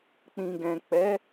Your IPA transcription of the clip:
k͡p ĩ˨ ɡ ɛ̃˨ k͡p ɛ˨˦

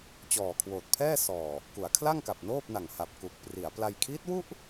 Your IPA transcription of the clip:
t͡ɕ ɔː˨˩ kʰ w oː˨˩ t̚ pʰ ɛː˥˩ s ɔː˨˩ | k u˩˦ a̯ kʰ l a˥˩ ŋ k a˨˩ p̚ n oː˥˩ p̚ n a˨˩ ŋ h a˨˩ p̚ k u˨˩ k̚ p r i˩˦ a̯ p l a˧ j kʰ iː˦˥ t̚ w u˥˩ ʔ

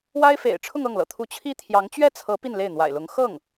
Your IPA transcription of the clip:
w a˥ ɪ̯ f ḛ˨˩ ɪ̯ ʈ͡ʂʰ ʊ˥˧ ŋ ɤ˥˩ ŋ l ɤ̰˨˩ t̪ʰ u˧˥ t͡ɕʰ i˥ t̪ʰ j ɑ˧˥ ŋ t͡ɕ ɥ ɛ˥˩ t͡sʰ ɤ˧˥ p i˥˧ n l e˥˩ ɪ̯ n̪ w a̰˨˩ ɪ̯ l ʊ˧˥ ŋ x ɤ˥˩ ŋ

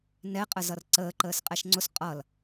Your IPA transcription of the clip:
n ɛ qʼ ə z ʌ r ǀ əː ǃ əː s qʼ ɛ ʃ ŋ͡ǀ ʊ s qʼ ʌ l

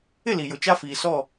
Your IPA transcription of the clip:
ɪ˦˨ l i˨ j ʊ˨ t͡ʃ a˦ f iː˨ s ɔ˦˨

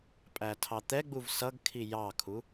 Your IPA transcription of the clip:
pʼ æ tʰ ɑ t̪ ɛ ɡ͡b u v s ʌ ɡ kʰ i j ɑ kʰ u

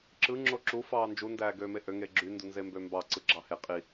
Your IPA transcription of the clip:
ǁ ɯ ŋ͡ǁ o ǁ u f ɑː n d͡ʒ u n d æː ɡ øː m e ʔ ø ŋ e ɡ͡ǁ y n d u n z e m b ø m b ɑ ǀ ɯ ɡ͡ǁ ɑ h e qʼ i

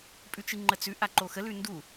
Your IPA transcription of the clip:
pʼ ʉ t͡ʃ ɨ ŋ͡ǃ ə t͡s ʉ ʔ a ǃ o x ə l ʉ n d u

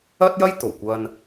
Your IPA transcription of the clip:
ɐ˥ t̚ j ɐ˥ j t̪ o˨˩ w kʷ ɐ˧ n

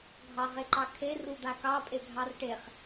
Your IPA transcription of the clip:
ɡʱ ɑ ʁ e ǃ ɑ kʰ e r u d̪ a k ɑ pʼ e ɡʱ ɑ r ʈ e χ

